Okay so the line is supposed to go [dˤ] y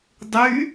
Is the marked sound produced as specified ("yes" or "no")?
yes